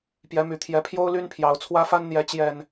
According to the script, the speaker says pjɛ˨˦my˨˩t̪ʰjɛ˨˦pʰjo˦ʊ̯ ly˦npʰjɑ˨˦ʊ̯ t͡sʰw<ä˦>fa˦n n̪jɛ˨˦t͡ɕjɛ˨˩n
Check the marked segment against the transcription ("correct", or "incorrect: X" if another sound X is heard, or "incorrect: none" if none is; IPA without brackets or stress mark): correct